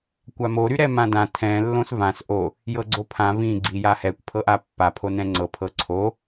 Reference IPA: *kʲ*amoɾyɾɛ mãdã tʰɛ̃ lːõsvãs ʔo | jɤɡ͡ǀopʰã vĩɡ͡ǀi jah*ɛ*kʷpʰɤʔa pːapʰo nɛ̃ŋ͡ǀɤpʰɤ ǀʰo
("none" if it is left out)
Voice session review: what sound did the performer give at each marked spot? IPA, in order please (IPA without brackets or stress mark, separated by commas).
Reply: kʷ, ɛ